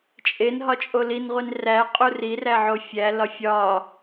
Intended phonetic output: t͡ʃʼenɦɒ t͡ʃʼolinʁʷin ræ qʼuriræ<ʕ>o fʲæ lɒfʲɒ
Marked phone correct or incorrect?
correct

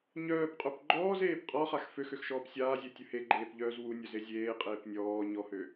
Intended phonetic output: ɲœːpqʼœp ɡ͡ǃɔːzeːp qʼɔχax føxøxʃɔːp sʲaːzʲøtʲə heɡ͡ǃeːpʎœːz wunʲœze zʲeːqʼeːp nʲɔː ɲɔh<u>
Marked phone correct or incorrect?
incorrect: ø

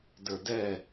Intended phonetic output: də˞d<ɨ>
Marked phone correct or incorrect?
incorrect: ɛ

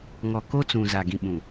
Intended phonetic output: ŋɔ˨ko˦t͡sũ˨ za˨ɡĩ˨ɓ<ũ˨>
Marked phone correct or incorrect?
correct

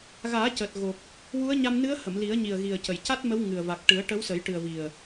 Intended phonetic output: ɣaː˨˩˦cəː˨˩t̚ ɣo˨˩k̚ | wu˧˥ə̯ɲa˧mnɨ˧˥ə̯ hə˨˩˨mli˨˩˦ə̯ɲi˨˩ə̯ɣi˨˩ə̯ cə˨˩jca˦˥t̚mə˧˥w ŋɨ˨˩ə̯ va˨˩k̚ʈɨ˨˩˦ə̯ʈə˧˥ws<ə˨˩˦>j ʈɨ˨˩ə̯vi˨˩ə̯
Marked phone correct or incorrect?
correct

